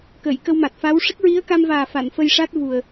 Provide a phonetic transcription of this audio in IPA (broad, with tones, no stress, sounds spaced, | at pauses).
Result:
k ə˨˩˨ j k ə˧ w m a˨˩ t̚ f a˧˥ w ʂ ə˦˥ k̚ ɹ i˧˥ ə̯ k a˧ m v aː˨˩ f a˨˩˨ n f ə˧ j ʂ a˦˥ t̚ v u˨˩ ə̯